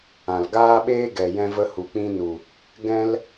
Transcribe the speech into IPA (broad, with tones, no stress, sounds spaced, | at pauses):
ã˨ l ɡ aː˦ ɓ eː˦ ɡ ɛ˨ j ɛ̃˧ v ə˧ h u˨ k͡p ĩ˧ n u˨ | ɡ ɛ̃˧ l